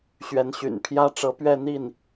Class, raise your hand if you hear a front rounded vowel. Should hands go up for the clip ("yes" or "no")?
yes